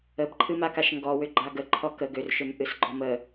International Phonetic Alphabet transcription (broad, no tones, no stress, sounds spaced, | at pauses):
ə b ǃʰ ɨ m a k a ʃ ŋ ɡ ɔ w ʏ ɡ͡ǃ a ɡ ə ǃʰ ɔ k ə ɡ ʏ r ʃ ʏ m ʔ ɨ s ɡ͡ǃ ɔ m ə